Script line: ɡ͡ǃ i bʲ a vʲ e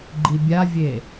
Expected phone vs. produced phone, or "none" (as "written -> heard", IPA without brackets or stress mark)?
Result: none